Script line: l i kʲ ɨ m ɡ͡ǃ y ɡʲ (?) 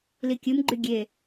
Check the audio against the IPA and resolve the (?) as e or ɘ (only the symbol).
e